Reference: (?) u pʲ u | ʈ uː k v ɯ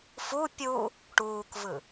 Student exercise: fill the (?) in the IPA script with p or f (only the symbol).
f